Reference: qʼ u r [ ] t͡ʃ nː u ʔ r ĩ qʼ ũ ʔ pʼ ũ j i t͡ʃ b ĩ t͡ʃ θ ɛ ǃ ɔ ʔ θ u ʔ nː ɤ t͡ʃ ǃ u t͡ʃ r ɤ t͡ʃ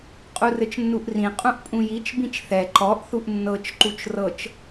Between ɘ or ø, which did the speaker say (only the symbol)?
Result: ɘ